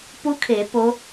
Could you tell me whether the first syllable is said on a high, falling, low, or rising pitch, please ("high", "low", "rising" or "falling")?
rising